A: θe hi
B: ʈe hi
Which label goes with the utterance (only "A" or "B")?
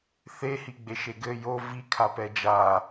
A